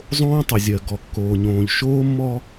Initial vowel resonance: nasal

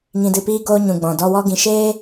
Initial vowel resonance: nasal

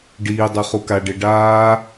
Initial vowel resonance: oral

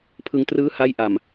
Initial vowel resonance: oral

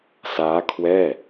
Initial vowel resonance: oral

